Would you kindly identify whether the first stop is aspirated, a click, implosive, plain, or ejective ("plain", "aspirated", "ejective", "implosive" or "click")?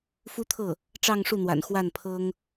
aspirated